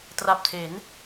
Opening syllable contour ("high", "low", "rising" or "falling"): low